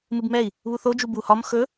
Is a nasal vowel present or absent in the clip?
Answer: absent